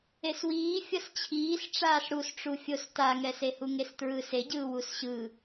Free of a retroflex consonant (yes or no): no